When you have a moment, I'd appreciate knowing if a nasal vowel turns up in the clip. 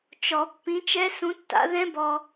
yes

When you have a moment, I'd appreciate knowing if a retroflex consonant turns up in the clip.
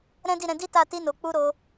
no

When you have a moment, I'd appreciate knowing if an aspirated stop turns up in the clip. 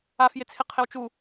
yes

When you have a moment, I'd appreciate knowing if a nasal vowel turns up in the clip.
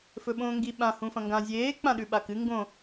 yes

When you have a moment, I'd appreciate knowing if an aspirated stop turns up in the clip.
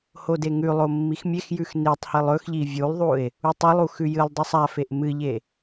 no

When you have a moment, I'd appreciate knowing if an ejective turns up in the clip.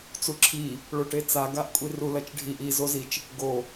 yes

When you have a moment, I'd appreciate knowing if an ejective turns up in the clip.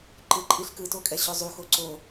yes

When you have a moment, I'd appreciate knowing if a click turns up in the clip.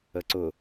yes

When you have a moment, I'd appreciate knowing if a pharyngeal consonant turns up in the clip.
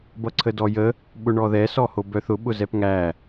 no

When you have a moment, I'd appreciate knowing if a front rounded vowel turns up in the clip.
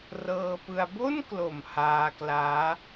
no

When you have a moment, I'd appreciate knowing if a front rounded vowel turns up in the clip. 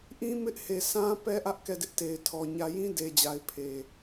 no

